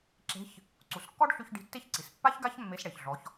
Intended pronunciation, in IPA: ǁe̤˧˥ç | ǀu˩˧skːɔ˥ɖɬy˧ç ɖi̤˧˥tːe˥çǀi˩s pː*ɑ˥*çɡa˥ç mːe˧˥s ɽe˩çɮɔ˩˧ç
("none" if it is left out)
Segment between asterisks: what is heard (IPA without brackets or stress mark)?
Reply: a˥